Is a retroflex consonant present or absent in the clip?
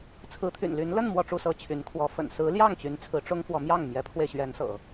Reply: present